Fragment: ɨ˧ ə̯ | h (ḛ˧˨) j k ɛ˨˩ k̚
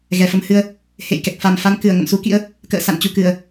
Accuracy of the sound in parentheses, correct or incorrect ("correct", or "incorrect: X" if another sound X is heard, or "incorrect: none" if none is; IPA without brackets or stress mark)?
correct